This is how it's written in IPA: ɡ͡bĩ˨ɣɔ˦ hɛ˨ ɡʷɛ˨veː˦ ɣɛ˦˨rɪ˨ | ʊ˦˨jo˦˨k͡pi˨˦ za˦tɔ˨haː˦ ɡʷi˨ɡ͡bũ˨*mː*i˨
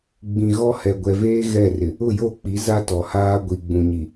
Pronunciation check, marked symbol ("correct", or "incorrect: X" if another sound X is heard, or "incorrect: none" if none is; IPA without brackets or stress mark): incorrect: ɲ